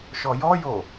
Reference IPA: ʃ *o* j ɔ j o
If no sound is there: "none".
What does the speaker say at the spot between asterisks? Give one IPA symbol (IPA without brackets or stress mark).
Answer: ɔ